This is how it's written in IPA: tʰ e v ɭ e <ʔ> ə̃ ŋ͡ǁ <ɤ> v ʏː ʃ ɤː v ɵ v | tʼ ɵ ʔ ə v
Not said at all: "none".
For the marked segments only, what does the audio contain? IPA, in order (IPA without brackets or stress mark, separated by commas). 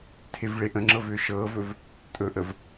ʔ, ɤ